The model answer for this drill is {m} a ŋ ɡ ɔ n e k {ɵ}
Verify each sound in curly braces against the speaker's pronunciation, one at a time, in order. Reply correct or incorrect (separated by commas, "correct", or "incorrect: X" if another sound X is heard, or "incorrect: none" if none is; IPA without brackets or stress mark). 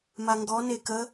correct, incorrect: ə